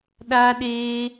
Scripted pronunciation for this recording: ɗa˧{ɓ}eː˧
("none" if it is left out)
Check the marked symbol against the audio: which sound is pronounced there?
ɗ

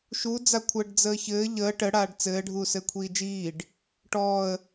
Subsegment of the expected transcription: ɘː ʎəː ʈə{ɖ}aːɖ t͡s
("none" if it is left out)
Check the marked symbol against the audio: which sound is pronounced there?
ɽ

